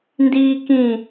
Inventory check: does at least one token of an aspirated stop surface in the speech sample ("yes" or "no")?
no